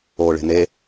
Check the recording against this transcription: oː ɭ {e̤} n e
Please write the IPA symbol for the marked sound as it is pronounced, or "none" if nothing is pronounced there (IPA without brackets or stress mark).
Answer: e̤